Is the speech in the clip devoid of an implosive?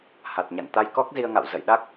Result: no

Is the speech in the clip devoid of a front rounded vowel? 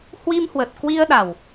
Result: yes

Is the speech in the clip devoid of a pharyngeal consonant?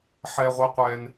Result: no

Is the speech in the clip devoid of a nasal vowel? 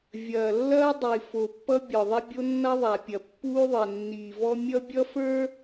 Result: yes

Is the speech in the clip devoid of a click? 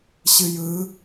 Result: yes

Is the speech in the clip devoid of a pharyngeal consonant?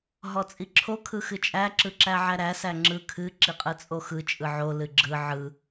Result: no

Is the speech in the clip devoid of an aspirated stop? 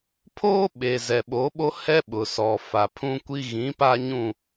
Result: no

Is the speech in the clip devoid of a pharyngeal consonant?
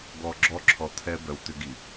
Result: yes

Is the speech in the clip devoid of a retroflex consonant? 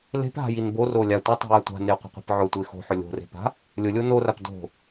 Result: yes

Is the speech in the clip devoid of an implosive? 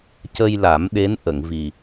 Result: no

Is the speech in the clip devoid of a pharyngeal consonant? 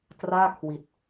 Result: yes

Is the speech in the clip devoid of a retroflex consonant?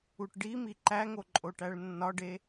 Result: no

